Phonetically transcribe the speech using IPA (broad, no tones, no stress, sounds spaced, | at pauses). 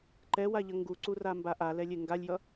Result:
ǃ ɛ w a ʎ ʌ ŋ ɡ u ǀ u r a m b a ʔ a l ɛ lʲ e ŋ ɡ a lʲ j ʌ